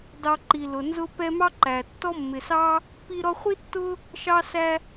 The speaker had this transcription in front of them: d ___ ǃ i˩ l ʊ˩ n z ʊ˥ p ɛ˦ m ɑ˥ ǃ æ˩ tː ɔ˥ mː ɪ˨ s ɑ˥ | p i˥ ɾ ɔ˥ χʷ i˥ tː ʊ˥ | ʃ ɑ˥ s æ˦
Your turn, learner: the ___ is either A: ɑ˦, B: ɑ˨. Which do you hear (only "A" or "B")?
B